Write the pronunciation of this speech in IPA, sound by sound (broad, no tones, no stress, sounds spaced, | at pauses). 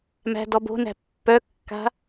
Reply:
m æ̤ d ɔ b o̤ n æ̤ pː œ kː a̤